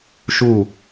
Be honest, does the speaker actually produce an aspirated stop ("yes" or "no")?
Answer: no